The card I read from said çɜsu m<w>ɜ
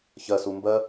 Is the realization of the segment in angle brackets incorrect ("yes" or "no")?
yes